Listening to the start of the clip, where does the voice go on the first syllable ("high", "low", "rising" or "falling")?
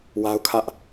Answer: high